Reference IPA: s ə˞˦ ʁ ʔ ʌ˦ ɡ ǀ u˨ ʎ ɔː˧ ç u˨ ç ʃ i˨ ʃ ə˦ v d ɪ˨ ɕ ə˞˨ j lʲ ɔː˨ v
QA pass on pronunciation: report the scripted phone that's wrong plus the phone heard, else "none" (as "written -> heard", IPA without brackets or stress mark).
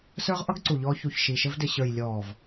none